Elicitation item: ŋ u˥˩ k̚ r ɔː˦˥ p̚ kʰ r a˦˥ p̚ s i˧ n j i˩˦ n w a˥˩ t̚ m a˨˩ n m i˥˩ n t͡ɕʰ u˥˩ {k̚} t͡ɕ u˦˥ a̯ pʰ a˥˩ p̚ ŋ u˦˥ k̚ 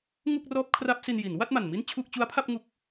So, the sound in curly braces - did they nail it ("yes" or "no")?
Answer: yes